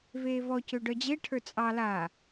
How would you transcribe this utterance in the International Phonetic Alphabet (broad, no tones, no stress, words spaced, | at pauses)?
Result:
veːvɔcø ɖœd͡ʑeʈʰə˞ t͡sʼɑ la